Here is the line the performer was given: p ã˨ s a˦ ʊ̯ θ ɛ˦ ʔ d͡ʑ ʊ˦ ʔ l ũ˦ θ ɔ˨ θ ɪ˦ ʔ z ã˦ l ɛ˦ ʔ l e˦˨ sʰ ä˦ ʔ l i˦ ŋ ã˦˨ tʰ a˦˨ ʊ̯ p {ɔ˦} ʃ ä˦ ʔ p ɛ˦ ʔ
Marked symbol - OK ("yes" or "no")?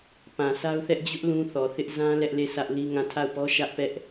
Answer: yes